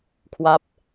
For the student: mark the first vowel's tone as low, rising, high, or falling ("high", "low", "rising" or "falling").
falling